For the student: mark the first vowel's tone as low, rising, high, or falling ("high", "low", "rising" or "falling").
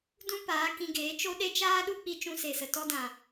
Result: high